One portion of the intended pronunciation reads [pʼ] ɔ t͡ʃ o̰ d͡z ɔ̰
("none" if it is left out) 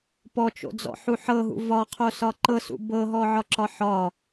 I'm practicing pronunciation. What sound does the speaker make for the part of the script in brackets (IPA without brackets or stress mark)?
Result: p